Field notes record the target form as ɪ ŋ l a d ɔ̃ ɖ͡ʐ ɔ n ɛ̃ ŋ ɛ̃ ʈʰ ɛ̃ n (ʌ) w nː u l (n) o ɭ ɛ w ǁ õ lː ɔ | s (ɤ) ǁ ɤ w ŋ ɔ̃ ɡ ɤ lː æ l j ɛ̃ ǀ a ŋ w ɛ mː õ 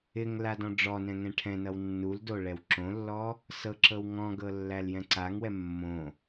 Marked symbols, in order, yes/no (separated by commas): yes, no, yes